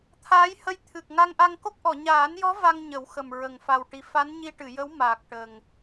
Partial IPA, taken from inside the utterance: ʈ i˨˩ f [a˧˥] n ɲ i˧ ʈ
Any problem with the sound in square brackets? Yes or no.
no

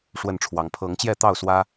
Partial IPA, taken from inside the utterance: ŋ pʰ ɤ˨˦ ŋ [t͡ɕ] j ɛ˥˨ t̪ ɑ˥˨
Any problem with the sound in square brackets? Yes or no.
no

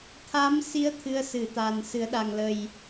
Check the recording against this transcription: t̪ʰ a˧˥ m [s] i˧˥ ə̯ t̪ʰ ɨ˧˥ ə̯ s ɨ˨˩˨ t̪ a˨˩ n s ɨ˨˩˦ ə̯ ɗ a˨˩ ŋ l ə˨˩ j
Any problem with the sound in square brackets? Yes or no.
no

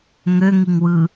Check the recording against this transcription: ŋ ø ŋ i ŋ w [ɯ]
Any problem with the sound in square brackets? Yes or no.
no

